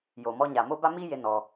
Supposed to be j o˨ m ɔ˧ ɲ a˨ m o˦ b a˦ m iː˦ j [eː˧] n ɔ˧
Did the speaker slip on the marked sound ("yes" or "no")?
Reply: yes